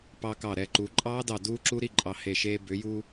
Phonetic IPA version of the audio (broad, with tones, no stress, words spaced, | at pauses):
pɑ˧kɑ˧˩ ɾɛ˩˧ǃuː˩˧ ǃʼɑː˦˥dɑ˧˩ duː˦˥ǁu˦˥ɾi˥˨ ǃʼɑ˧˩he˧˩ʃeː˧ bʏ˩˧ju˧